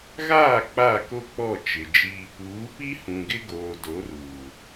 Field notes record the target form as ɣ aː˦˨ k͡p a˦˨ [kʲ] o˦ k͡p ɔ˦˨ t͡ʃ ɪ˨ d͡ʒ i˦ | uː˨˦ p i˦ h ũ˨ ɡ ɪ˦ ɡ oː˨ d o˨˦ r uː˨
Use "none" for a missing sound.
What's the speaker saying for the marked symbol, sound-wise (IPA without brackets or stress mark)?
k